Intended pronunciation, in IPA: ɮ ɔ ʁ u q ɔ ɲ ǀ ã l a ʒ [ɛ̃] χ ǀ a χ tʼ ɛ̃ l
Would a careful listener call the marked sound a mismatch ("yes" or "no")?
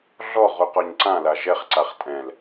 yes